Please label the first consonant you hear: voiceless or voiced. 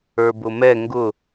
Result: voiced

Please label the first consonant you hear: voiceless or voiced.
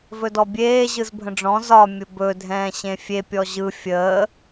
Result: voiced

